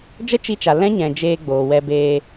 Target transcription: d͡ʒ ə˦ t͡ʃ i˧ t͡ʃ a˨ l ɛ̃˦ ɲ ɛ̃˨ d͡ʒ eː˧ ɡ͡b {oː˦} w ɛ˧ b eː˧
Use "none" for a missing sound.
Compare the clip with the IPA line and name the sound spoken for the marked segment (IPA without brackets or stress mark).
oː˨